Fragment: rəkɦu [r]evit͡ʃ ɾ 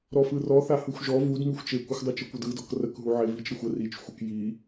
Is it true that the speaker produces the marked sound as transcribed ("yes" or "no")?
no